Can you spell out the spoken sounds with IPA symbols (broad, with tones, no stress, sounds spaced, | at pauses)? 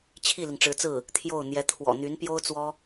t͡ɕʰ i˥˩ l i˩ ŋ ʈ͡ʂ ɻ̩˧˥ t͡s ɹ̩˥˩ | t̪ʰ j o˥˩ ʊ̯ n̪ j ɛ˧˥ t̪ʰ w ɔ̰˨˩ n̪ y˧˥ n p j o˥ ʊ̯ t͡s w ɔ˥